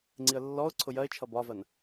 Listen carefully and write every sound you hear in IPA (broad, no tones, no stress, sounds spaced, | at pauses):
ŋ͡ǀ i ə̯ lː ɔ ʊ̯ ǀʰ ʊ j ɜ ɪ̯ t͡ʃʰ ʌ b ɒ v ɜ n